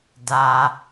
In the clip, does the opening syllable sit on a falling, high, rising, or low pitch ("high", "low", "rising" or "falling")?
low